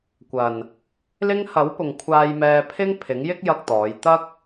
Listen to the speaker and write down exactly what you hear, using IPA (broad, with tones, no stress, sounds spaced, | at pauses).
kʷ ɐ˨ n | l ɪ˥ ŋ h ɐ˨˥ w p ʊ˨ ŋ kʷʰ aː˧ j m ɛː˧ pʰ ɪ˥ ŋ pʰ ɪ˨˥ ŋ j ɪ˥ k̚ j ɐ˧ k̚ t̪ ɔː˨˧ j t̪ ɐ˥ k̚